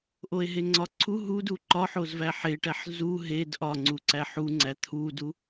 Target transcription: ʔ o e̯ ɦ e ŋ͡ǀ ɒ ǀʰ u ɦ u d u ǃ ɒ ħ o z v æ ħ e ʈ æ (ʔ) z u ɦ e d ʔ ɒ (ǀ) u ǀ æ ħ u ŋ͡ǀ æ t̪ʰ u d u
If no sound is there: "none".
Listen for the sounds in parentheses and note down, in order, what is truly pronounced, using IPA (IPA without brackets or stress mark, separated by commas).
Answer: ħ, ŋ͡ǀ